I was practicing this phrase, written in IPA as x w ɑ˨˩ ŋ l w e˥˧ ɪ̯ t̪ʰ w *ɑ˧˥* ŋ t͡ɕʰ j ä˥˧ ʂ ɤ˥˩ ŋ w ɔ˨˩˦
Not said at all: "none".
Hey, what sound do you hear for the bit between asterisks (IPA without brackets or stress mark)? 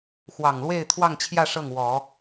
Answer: ɑ˥˧